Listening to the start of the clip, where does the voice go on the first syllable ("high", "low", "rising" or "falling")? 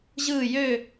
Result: falling